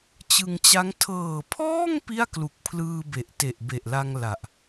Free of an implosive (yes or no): yes